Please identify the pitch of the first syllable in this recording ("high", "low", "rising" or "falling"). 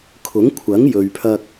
rising